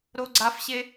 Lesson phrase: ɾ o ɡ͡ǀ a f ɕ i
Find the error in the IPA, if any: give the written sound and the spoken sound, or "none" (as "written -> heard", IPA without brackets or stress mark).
i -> e